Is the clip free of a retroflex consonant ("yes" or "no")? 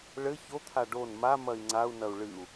no